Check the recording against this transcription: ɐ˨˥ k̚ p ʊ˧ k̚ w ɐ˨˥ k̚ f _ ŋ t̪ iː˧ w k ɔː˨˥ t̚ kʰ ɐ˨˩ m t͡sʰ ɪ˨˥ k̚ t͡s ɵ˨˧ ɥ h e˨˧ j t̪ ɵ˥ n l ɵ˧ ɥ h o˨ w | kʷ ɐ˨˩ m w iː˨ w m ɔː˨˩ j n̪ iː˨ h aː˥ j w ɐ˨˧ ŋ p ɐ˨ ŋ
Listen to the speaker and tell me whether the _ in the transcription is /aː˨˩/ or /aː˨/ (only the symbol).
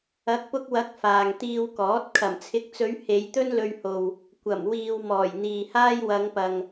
aː˨